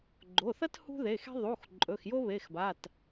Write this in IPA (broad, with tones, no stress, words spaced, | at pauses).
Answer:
ɡ͡ǃo˩˧˩θɐ˥t hṳ˥ðe˩˧˩xe̤˥ ðˤu˩˧˩x ǃʼɵ˩˧˩xjo˥βe˩˧˩xba˩˧˩t